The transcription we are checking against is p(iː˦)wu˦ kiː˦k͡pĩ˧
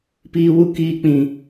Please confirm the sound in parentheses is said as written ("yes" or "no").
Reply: yes